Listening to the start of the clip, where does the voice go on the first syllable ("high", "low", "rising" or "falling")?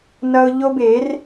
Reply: high